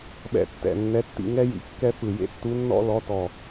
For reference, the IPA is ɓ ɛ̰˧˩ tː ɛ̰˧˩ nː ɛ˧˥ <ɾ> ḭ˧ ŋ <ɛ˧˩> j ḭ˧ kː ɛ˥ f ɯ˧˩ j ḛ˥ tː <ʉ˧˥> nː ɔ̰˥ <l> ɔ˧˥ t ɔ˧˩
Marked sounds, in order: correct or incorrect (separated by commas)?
incorrect, incorrect, incorrect, correct